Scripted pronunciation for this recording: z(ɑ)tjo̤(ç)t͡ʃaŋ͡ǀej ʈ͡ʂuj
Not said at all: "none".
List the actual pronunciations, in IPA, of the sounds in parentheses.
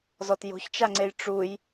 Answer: ɔ, ç

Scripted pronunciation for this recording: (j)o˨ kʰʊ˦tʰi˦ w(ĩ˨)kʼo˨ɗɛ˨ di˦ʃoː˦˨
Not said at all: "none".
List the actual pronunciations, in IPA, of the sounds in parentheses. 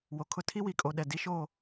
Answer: w, i˨

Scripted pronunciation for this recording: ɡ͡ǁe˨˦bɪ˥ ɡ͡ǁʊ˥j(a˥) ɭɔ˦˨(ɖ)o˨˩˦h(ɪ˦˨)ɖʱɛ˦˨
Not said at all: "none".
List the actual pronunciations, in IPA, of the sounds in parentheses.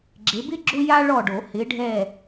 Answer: a˥, ɖ, ɪ˨˦

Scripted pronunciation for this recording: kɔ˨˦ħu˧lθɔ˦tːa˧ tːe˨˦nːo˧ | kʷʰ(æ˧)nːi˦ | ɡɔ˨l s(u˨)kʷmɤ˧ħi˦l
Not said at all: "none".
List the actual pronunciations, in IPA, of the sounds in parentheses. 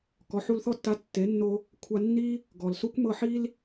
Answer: a˧, u˦

